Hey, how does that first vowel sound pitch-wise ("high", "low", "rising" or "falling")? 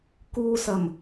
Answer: low